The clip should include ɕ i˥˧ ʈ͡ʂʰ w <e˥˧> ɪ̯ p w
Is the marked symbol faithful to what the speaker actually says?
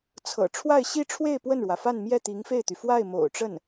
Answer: yes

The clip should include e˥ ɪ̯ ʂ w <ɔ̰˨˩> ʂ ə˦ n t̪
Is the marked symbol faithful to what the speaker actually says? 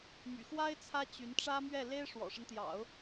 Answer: yes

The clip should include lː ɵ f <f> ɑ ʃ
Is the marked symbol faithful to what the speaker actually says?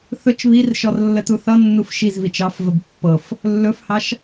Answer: no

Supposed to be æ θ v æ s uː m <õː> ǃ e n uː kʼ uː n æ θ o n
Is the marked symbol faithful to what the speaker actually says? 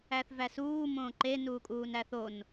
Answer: yes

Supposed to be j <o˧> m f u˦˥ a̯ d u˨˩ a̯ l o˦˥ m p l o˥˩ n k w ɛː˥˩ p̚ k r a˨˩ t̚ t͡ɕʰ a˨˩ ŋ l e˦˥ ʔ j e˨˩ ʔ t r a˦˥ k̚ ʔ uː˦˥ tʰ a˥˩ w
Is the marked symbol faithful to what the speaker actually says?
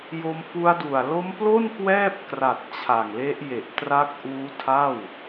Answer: yes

